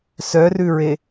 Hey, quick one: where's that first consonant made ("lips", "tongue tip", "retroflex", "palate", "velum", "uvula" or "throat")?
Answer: tongue tip